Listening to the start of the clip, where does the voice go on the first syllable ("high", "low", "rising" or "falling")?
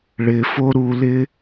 low